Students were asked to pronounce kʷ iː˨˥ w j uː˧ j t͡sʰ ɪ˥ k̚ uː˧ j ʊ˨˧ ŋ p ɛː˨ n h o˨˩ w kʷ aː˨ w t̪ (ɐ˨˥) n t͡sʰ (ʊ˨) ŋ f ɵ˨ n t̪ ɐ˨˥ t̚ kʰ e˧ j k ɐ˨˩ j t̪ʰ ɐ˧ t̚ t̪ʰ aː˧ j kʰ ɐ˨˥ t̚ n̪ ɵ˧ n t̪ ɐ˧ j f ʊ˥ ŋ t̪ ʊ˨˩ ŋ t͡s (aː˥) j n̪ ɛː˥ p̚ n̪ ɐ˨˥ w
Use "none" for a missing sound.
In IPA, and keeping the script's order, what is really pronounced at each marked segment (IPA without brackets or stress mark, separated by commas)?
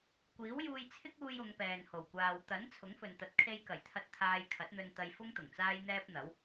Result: ɐ˨˥, ʊ˨˥, aː˥